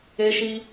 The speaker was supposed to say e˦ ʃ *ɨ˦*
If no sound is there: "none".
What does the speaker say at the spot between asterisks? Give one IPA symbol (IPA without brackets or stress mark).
i˦